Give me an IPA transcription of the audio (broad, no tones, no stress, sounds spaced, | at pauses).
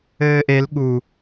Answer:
ɘː ʔ e l ɠ u